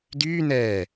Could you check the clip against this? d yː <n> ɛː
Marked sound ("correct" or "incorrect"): correct